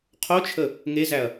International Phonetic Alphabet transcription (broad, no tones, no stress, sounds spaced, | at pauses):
qʰ o t͡ʃʰ ə | ŋ e z æ ɐ̯